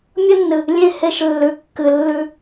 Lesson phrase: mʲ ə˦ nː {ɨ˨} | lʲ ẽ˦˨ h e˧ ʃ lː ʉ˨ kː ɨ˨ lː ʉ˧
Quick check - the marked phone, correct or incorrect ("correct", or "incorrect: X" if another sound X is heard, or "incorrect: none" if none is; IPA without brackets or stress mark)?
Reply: correct